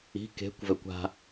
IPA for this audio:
i̤ k e̤ kʷ v ɛ kʷ a̤

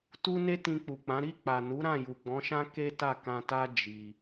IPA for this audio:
t u˦ n e˦ t ĩ˧ k͡p u˨ k͡p ã˨˦ ɾ i˦˨ k͡p a˨ n u˨˦ ɾ ã˦˨ j u˨ ɡ͡b ɔ̃˨˦ ʃ ã˦ k e˦ t a˦˨ k ã˧ t a˦ d͡ʒ i˧

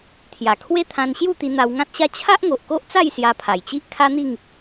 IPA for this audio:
t̪ʰ j a˨˩ kʰ w e˦ t̪ʰ ã˧ n ɕ j u˥˧ t̪ i˧ n̪ a˧ w ŋ ã˦ t̚ ɕ a˦ t͡ɕʰ a˦ ʔ ŋ o˨ ʔ k o˦ ʔ t͡s a˥˧ j s j a˧ pʰ a˨˩ j t͡ɕ i˦ ʔ kʰ a˦ n̪ i˥˧ ŋ

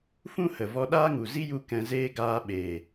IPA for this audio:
f ũ˦ h ə˨ v ɔ˧ ɗ aː˦ ŋ u˨ z i˦ j u˧ k ɛ̃˧ z eː˦ ɡ aː˧ ɓ eː˨

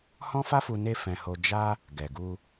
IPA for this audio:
h ɔ̃˦ f a˦ f u˧ n e˦ f ɛ̃˧ h o˧ d͡ʒ a˦ | ɡ ɛ˨ ɡ u˧

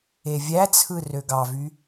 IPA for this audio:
e vʲ æ t͡sʰ ɯ r ø ɡ ɑ v y

